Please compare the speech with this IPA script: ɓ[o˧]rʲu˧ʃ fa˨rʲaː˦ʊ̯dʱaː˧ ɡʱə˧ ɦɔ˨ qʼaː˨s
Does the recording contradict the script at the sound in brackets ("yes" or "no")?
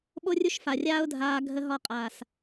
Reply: no